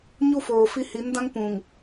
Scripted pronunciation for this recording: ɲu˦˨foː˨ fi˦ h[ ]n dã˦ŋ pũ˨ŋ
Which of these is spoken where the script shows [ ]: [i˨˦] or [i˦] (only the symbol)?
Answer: i˨˦